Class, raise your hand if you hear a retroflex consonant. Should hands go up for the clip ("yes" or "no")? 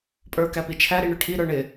yes